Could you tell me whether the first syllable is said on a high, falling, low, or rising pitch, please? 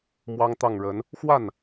high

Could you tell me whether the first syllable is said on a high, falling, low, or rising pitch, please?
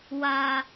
low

